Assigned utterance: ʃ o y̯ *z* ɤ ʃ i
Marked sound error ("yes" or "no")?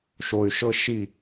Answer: yes